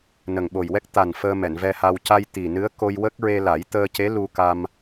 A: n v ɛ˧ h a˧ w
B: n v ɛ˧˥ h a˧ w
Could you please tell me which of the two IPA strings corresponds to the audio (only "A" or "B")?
A